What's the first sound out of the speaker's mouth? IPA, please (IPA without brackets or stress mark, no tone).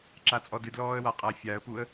ǁ